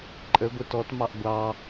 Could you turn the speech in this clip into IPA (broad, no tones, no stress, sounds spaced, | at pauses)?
ǃʼ ə ɡʷ ɪ t ɔ t m ɑ ʔ ɡʷ ɑ